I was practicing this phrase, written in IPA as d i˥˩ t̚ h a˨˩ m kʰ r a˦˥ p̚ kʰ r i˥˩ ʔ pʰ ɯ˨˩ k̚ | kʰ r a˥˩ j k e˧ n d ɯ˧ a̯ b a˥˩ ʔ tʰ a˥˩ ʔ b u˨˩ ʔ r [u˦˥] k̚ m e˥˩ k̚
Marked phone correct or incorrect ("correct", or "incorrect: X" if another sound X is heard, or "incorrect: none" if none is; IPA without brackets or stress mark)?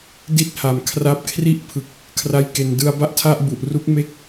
correct